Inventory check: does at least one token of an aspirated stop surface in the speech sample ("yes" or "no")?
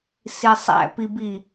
no